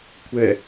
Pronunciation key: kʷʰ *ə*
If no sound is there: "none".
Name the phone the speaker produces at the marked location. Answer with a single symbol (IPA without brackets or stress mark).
ɛ